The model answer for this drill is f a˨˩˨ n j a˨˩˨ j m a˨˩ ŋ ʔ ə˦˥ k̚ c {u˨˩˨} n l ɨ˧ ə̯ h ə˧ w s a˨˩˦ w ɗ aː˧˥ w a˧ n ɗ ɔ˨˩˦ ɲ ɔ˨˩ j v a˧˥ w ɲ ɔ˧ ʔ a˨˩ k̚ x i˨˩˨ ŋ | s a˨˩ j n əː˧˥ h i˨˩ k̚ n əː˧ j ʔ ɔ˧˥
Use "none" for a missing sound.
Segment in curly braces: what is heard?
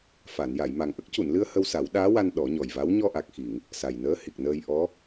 u˨˩˨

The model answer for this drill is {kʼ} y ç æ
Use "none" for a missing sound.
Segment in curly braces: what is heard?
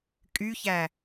kʼ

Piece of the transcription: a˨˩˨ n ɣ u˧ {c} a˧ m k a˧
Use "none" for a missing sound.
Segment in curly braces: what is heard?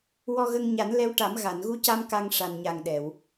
c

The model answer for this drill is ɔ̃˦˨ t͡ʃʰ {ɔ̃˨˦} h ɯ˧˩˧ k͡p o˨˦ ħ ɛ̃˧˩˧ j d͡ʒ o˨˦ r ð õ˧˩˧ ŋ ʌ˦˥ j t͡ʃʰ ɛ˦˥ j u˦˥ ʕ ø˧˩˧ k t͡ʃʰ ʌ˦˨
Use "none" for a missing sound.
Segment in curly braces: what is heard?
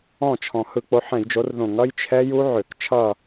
ɔ̃˨˩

